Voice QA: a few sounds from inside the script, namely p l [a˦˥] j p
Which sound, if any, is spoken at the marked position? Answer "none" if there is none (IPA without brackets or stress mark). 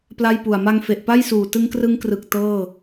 a˥˩